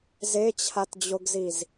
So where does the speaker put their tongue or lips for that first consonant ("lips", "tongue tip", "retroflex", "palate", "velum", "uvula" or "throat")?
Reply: tongue tip